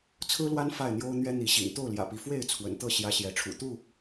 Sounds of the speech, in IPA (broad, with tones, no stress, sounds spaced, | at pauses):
t͡sʰ ɹ̩˦ l w a˦ n f a˥˨ ɪ̯ n̪ j o˦ ʊ̯ n̪ ɥ ɛ˦ n̪ i˨˦ ɕ ḭ˨˩ ŋ t̪ o˥˨ ʊ̯ l j ä̰˨˩ p i˨˦ f w e˥˨ ɪ̯ t͡sʰ w ə̰˨˩ n t̪ ɤ˥˨ ɕ j ä˦ ɕ j ɛ˨˦ ʈ͡ʂʰ ṵ˨˩ t̪ u˥˨